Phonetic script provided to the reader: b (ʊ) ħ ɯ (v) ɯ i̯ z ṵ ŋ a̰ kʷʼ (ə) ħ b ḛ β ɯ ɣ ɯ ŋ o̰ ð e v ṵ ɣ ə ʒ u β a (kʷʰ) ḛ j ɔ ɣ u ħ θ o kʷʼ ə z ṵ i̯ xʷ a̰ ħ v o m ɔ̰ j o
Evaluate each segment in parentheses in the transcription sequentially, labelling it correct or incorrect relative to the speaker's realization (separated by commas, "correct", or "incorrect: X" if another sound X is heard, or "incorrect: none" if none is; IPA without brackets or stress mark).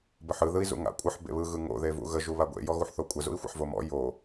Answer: incorrect: ə, incorrect: ð, correct, incorrect: ɡʷ